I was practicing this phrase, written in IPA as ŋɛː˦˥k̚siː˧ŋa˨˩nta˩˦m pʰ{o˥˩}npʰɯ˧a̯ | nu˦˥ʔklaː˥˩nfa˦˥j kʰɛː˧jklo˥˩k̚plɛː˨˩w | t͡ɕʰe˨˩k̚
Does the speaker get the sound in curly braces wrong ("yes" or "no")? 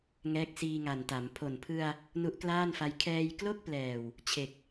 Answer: yes